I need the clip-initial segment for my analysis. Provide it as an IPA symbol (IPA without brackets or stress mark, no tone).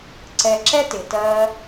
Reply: ǀ